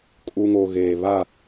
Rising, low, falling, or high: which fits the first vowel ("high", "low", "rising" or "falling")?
low